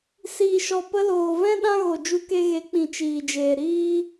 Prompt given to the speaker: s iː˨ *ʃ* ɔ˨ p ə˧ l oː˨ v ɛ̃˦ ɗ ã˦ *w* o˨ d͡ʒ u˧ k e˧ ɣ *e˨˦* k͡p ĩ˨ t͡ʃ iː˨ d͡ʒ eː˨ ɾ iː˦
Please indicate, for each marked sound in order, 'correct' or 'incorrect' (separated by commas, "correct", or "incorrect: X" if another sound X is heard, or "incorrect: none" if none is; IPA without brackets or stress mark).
correct, incorrect: ɣ, correct